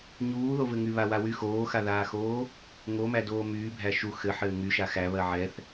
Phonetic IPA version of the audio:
ɲ uː ð o v ɘ ŋ y β a w a w y x oː x a ð aː x oː | ŋ o m æ d oː m yː bʱ æ ʃ u x ɘ ħ ɘː ŋ y ʃ a x æ β ɜ ʕ ɛ θ

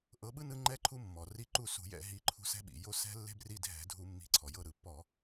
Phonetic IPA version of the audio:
ʔ ɤ˨˦ ɓ ɯ˦ n ɯ˦ ŋ͡ǃ ɛ˦ ǃʰ u˦ mː ɔ˩ r i˦˨ ǃ u˦˨ s ṳ˧˩˧ j ɛ̰˧˩˧ ɦ i˨˦ ǃʰ ṳ˦ s ɛ̤˦ ɓ ḭ˩ j o˦˨ s ɛ̤˦ lː e̤˦ b r i˦˨ dʱ ɛ̤˧˩˧ dʱ u˧˩˧ mː i̤˨˦ ǀʰ ɔ˩ j ɤ˦˨ ɾ ɯ˩ pː ɔ˧˩˧

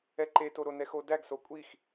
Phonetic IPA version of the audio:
ɛ ǃ e t o ɾ o n ɛ x o d æ ɡ s o kʷʼ i x

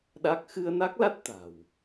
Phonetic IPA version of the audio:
ɗ a˦˥ k̚ x ɨ˧ ə̯ n a˦˥ k̚ l a˦˥ t̚ t̪ a̤˨˩ w

